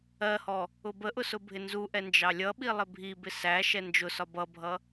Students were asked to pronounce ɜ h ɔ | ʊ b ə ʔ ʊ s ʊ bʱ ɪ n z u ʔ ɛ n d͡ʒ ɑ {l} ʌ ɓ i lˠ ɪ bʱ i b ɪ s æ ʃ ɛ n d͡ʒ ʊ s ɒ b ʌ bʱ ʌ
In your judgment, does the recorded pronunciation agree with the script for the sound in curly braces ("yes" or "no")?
no